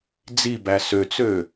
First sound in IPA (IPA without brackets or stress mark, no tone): d͡z